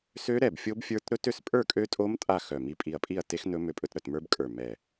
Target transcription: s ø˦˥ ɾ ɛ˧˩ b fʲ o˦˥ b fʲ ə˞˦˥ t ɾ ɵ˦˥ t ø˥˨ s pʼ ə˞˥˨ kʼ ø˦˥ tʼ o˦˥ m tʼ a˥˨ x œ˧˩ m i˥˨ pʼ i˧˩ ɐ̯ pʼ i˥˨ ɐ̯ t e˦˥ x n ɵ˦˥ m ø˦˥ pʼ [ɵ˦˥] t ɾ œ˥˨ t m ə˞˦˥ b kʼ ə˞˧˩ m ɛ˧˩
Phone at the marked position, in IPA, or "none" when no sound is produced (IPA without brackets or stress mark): ɵ˦˥